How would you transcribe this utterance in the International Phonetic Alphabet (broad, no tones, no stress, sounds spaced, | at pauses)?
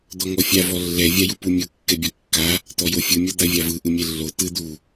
d̪ ɔ ŋ ɔ fʲ a v ɔ lː ɛ vʲ a j u p u mʲ o kː ɛ bʲ ɔ kː a | t̪ ɔ j o fʲ ɯ mʲ ɔ d̪ a vʲ a v ɯ ʔ ɯ mʲ ɛ lː o t̪ ɯ d̪ u